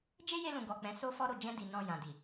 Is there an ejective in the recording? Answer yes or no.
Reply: no